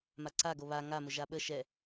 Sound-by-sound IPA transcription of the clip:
maǀaɡo βa ŋa mʊʒaɓə ʃɛ

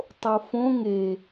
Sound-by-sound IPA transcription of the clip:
tˤofõ ŋe

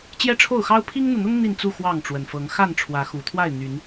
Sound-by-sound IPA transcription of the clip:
t͡ɕjɛ˦ʈ͡ʂʰo˥˨ʊ̯xɑ˦ʊ̯ pʰi˦ŋn̪u˨n̪ʊ˦ŋ n̪i˥˨nt͡su˥˨ xwɑ˥˨ŋʈ͡ʂwə˨˩nfɤ˨˦ŋ xa˥˨nʈ͡ʂʰwä˨˦xu˨˩t̪ʰwa˥˨ɪ̯ n̪y˨˦n

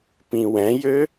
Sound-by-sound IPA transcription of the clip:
pĩwɛ̃jø

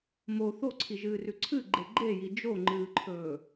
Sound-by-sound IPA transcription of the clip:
mo θoǀʰiʒɨːrʉ ǀʰɨɡ͡ǃe ɡ͡ǃeji d͡ʒoŋ͡ǃɨːǃʰɵː

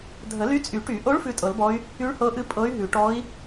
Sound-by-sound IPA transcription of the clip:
dʱə˨˩˦ly˧˥ t͡sʼy˨˩˦ʈy˨˩˦ʔo˧˥ɭ fʉ˧˥tʼɤ˨˩˦lbɔ˧˥y̯ | y˧˥ɭhɤ˧˥ʔɨ˧˥ pʼɤ˧˥y̯ɦʉ˨˩˦ ʈɔ˧˥i̯

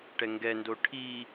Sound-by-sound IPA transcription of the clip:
ʈɛŋɡɛndo ʈʰi

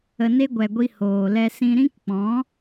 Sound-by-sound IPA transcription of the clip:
ə˧ne˦ ɡʷɛ˨ɡʷi˧ hoː˨lɛ˧sĩ˧ ɾĩ˦kk͡pɔ̃˨˦

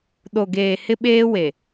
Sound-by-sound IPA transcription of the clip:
ɗo˨ɡeː˨ hɪ˦ɓeː˦we˨

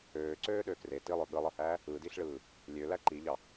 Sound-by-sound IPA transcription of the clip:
øːǀøːɗø kre tilˠø ɠɯlˠɯhæː | ɯdiɬɭɯː | lʲølæ ǃiʎɑ

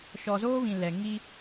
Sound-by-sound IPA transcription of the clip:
ʃɔ˨zoː˦βĩ˨ lɛ˨ ŋi˦

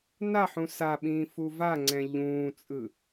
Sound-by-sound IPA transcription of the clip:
naħũ saɓĩː fuvaŋ͡ǀɛ̃ ʎũːt͡sʼɯ

